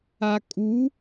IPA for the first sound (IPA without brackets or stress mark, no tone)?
a